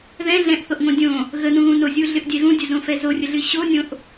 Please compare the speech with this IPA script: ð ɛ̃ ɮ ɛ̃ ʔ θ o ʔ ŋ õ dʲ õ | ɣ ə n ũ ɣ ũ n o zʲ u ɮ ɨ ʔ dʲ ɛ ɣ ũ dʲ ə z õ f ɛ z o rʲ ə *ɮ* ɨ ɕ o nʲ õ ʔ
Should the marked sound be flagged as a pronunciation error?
no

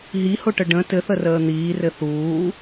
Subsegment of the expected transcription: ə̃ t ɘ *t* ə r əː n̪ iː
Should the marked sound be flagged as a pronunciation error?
yes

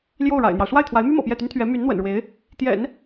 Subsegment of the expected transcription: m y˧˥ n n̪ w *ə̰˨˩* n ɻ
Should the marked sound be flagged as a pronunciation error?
no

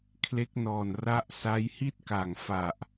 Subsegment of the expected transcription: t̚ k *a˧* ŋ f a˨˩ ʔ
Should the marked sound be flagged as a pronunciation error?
yes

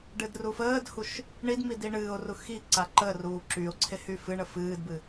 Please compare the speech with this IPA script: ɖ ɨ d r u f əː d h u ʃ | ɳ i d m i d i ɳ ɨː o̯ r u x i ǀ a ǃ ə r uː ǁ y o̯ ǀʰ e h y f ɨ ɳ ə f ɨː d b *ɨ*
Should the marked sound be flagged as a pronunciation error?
no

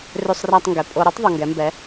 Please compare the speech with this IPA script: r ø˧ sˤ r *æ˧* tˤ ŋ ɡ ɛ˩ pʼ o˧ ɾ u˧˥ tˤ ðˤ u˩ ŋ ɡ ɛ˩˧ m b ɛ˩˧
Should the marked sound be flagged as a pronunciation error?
no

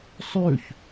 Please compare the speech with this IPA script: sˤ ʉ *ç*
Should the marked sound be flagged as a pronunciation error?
no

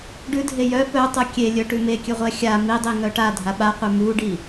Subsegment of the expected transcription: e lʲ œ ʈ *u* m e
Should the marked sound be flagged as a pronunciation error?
yes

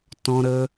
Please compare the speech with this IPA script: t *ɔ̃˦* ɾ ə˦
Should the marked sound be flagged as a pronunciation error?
no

